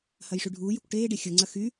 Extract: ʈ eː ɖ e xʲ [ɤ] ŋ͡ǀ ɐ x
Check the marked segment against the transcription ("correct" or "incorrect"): correct